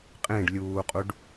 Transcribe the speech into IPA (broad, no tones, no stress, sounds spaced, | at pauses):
qʼ ẽ ɖ lʲ uː qʼ u ɖ